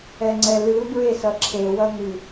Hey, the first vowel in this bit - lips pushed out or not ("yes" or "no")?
no